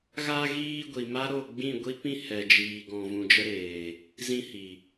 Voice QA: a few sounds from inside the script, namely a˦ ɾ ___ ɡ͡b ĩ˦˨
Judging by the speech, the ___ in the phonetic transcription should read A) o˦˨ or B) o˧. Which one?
A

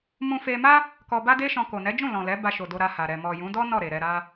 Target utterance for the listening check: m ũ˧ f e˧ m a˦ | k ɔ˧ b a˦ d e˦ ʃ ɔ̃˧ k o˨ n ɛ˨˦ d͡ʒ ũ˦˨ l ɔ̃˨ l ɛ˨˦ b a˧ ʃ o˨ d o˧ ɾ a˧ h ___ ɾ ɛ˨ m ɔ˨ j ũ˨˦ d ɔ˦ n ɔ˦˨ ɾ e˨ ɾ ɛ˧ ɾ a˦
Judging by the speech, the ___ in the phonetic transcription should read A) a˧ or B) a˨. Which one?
B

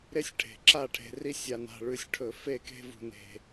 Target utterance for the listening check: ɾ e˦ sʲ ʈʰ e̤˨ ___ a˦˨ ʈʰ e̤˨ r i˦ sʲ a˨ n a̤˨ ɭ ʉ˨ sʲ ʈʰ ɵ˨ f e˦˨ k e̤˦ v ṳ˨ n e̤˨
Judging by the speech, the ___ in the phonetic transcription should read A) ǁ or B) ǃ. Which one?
A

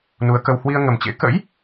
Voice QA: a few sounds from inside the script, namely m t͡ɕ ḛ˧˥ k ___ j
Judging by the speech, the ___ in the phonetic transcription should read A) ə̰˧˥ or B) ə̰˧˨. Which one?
A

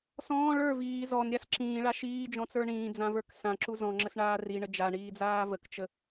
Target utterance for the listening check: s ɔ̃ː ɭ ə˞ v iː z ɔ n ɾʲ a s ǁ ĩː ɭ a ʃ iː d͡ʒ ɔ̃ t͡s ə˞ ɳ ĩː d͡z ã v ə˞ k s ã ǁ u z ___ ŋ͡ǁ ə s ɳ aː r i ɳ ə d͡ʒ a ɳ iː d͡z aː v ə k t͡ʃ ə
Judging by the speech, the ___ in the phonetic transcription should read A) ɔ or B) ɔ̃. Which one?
B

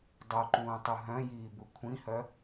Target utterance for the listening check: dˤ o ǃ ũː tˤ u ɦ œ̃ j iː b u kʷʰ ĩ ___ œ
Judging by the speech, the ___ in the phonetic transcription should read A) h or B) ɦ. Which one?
A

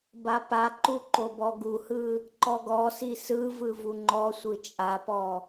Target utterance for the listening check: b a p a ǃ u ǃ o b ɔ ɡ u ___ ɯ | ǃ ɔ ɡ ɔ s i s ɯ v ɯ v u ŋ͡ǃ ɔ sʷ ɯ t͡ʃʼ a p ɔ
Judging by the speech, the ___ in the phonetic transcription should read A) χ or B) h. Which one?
B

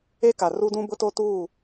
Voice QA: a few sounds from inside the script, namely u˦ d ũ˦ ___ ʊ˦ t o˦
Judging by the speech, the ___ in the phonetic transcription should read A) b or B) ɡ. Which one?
A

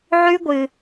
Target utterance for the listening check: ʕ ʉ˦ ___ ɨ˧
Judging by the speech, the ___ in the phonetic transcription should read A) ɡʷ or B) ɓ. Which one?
A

